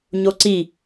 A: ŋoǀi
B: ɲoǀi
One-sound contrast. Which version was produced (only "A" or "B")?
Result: B